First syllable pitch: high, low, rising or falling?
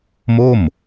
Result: falling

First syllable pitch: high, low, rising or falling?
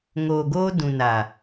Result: low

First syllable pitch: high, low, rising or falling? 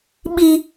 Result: high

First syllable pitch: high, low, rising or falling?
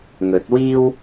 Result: rising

